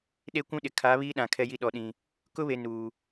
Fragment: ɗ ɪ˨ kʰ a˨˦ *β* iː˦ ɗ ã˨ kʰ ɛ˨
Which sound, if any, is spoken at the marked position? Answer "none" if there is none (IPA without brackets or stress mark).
β